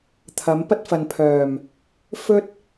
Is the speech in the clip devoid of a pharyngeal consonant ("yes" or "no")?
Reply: yes